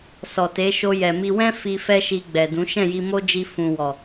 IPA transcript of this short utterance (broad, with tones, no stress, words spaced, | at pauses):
sɔ˨te˨˦ʃo˧ jɛ˨mi˧ wɛ̃˦ fi˧ fɛ˦ʃi˧ɡ͡bɛ˨dũ˨˦ ʃɛ̃˦˨ji˧mo˦d͡ʒi˧ fũ˨wɔ˨